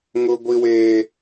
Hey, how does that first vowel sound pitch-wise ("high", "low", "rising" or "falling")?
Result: high